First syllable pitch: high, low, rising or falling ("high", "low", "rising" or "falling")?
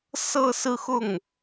falling